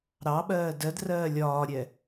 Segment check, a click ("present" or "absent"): absent